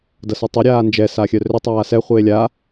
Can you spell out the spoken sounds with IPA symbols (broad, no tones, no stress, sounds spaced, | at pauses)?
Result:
d ɐ s œ tˤ ʏ ɾʲ aː n d͡ʒ ɛ s aː xʲ œ r ʏ tˤ aː s ɛ χʷ eː lʲ a